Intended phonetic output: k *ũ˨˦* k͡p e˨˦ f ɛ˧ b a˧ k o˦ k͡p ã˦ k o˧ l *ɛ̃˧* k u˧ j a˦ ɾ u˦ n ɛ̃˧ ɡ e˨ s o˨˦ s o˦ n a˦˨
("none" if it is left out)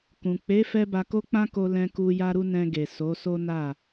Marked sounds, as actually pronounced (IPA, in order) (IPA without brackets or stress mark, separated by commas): ũ˨, ɛ̃˧